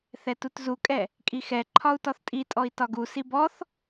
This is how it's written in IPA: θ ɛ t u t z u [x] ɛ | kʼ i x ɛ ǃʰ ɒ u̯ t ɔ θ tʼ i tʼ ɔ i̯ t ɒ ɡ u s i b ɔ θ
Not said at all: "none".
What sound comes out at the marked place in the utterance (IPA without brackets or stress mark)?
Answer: kʼ